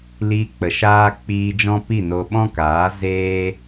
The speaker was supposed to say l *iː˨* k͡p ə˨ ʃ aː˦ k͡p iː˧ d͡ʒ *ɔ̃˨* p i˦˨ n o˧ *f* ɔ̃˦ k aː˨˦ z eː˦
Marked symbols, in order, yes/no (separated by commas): no, no, no